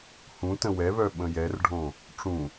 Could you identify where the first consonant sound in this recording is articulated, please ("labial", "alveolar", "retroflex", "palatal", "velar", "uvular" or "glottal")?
glottal